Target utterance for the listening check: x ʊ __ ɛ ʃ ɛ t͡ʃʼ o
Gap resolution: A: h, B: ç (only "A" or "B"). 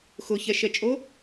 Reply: B